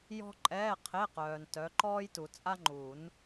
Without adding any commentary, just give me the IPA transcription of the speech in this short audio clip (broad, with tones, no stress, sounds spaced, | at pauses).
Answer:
j ɔ̤˥ ǃʼ ɛː˧˥˧ qʰ e˧˥˧ q œː˨ n t œ˨˦ ǃ ɔː˥ j t u˨ t͡sʼ a˥ ŋ͡ǃ u˨˩˦ n